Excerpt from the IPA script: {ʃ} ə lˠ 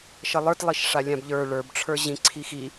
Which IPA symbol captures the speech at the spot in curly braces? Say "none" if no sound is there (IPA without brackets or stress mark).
ʃ